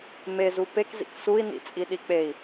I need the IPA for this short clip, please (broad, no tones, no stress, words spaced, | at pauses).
mezu pekzḭk sui̯nḭ t͡sʼiɗik͡pei̯